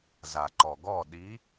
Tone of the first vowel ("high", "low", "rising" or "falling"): low